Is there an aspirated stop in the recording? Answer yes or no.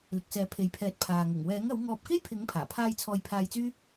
yes